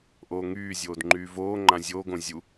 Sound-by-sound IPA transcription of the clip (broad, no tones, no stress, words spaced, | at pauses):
ʔoːŋyːzʲoːd ŋ͡ǃyːvoːŋ͡ǃã zʲoːɡõ zʲu